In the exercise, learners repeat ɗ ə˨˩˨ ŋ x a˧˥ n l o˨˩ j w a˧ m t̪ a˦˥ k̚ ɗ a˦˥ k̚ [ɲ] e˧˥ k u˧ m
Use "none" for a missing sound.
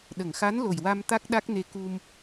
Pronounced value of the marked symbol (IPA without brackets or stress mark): n